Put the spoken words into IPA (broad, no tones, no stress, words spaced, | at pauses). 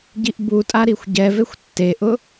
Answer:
ɟiʔbutʼa ɾixʷɟɛvexʷ tːeʔʊ